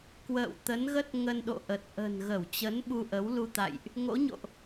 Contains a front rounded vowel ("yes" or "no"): no